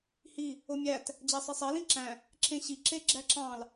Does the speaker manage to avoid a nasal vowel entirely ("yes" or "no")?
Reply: no